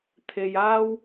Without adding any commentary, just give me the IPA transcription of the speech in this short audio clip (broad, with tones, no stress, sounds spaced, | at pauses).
t̪ʰ e˧ j aː˥ w